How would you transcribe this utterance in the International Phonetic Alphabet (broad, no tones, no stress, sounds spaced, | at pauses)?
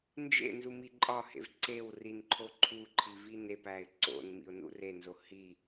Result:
n d͡ʒ ḛ n z u m i ǃʼ ɒ h ḛ v ǀ e w r i n ǃʰ o ǃʰ u ǃʰ i v i n e p æ ɪ̯ ǀ o̰ n m ḭ ʊ̯ n ṵ r e n z o h i